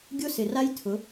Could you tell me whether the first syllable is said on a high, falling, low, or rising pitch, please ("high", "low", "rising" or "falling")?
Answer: high